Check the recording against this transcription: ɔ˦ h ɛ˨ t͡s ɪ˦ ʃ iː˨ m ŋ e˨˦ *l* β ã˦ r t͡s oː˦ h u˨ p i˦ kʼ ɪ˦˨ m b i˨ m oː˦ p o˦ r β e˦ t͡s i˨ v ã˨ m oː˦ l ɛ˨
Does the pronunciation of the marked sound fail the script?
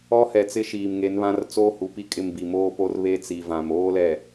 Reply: yes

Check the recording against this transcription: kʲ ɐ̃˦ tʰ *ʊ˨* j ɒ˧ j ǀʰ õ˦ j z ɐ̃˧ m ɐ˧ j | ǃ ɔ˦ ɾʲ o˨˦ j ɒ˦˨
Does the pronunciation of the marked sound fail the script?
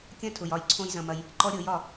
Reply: no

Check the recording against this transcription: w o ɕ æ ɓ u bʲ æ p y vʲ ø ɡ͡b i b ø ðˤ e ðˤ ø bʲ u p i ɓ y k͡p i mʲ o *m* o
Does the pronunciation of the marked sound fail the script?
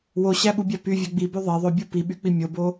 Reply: yes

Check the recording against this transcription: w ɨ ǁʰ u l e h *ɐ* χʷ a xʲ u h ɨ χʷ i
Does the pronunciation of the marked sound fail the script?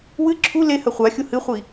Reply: no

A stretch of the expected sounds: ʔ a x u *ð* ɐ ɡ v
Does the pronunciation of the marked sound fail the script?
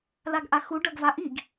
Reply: yes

